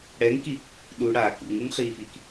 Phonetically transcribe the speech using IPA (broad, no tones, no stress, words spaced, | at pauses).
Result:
ɽɛŋki | ɗu ɽa kṵŋuŋχiːfiːk